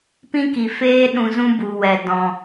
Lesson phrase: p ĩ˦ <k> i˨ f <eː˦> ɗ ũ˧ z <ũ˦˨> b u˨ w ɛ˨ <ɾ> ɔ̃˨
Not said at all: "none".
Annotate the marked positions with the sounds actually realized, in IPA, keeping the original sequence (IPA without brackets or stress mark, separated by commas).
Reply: k, eː˦, ũ˦, d